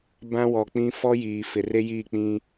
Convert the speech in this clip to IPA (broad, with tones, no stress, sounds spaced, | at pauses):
b ã˦ w ɔ˨ k͡p ĩ˦ f ɔ˦ j iː˨ f ɪ˨ r e˦ j iː˦˨ k͡p ĩ˦